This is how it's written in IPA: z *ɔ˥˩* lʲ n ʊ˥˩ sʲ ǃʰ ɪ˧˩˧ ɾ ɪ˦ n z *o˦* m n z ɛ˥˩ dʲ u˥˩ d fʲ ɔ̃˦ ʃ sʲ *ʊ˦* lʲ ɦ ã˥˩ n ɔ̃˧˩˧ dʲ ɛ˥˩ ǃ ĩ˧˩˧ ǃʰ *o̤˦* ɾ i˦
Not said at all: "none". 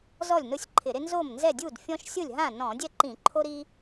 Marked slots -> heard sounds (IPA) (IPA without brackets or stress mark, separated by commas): ɔ˥˩, o˥˩, ʊ˥˩, o˦